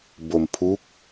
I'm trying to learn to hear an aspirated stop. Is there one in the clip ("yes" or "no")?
yes